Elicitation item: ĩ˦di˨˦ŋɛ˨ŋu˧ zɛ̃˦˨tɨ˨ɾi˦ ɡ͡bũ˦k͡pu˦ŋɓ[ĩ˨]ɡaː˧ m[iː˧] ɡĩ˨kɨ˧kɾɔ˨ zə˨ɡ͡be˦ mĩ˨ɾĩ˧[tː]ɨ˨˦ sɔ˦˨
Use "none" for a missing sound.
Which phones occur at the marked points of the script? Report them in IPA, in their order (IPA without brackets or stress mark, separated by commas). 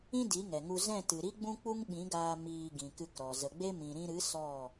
ĩ˨˦, iː˧, ɾ